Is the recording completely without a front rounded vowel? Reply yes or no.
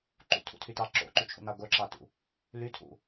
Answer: no